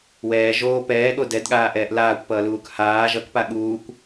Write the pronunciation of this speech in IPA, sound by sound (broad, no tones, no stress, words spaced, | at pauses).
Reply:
wɛː ʒoː pɛːɠo dɛdɠaːʔɛːʔ laːkʷpʌːluːk haː ʒʌkpa ɠuːkʷ